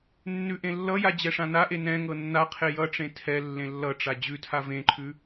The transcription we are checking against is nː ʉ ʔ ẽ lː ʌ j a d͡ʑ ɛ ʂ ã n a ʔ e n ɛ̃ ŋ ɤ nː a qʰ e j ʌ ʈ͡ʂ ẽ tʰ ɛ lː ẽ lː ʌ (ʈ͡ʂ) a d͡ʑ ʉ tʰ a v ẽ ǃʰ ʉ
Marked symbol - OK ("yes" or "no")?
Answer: yes